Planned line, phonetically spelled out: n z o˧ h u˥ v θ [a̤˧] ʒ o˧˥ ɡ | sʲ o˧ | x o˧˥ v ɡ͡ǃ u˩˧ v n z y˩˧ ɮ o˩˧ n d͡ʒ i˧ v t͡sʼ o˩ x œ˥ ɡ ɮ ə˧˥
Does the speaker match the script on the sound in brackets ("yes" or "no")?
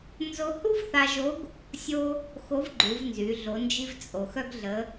no